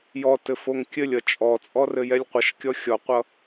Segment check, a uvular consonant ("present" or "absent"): present